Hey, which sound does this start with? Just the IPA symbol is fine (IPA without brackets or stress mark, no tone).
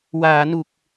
w